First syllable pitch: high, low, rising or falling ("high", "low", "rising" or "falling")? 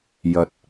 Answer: low